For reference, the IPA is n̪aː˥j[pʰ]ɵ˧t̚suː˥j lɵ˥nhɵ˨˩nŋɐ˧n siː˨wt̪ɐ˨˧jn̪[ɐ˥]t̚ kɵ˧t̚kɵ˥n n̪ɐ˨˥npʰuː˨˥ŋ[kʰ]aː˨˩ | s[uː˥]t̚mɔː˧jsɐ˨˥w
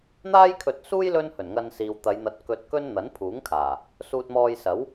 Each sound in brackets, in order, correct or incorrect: incorrect: kʰ, incorrect: ɐ˧, correct, incorrect: uː˧

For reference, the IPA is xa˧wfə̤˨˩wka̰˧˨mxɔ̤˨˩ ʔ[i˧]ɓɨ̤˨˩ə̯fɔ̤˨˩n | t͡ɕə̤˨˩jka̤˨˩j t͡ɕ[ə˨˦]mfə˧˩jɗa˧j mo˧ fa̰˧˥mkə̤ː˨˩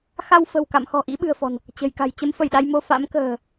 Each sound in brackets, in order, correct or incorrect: incorrect: ḭ˧˥, correct

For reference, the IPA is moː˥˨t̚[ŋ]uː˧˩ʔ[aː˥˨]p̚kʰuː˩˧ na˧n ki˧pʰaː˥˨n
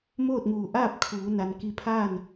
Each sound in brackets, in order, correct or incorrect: correct, correct

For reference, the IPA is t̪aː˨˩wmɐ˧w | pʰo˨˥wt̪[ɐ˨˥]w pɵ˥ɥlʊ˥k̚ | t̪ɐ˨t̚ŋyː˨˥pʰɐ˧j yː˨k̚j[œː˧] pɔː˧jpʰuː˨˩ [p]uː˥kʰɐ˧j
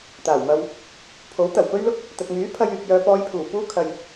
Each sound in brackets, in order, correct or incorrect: incorrect: ɐ˨˩, correct, correct

